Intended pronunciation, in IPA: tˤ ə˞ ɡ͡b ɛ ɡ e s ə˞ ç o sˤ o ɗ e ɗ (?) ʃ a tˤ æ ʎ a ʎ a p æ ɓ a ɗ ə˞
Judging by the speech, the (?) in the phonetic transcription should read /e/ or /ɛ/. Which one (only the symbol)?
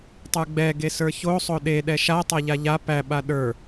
ɛ